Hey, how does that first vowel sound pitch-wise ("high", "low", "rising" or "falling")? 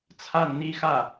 falling